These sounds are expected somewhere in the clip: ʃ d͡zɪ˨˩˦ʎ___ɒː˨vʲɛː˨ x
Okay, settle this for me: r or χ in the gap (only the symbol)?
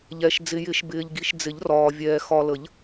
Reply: r